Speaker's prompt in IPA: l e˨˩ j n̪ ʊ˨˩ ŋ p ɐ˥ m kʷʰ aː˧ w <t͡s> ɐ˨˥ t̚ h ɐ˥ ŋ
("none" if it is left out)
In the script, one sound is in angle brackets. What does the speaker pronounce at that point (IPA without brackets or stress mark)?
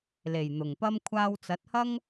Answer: t͡s